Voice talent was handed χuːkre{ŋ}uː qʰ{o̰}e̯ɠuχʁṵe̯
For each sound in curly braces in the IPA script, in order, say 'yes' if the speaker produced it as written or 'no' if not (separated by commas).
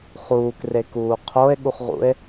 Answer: no, no